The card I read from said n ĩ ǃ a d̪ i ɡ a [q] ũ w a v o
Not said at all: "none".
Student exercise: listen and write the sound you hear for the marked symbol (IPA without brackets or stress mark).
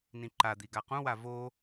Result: q